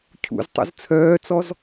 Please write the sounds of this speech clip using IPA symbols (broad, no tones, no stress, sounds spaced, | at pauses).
cʰ ṵ z tˤ ṵ z t͡sʰ œː t͡s ɔ z